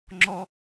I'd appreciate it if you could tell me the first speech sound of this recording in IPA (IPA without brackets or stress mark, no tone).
ŋ͡ǁ